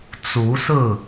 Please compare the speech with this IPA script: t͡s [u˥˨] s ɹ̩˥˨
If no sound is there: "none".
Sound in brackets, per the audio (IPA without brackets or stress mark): u˨˦